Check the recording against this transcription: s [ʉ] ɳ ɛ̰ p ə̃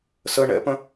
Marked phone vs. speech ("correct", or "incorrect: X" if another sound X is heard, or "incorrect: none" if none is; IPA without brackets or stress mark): incorrect: ə